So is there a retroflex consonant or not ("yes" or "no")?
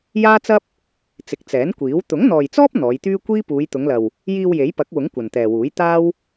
no